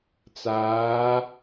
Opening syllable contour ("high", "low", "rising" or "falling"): rising